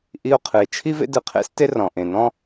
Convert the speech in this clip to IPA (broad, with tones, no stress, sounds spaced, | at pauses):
ʔ i˧ o̯ qʰ ɨ˩ e̯ t͡ʃʰ i˥ v ḛ˥ d ɯ˩ qʰ ḛ˥ s t e˥ r ɔ̃˩ ʔ ẽ˩ n ɔ̃˥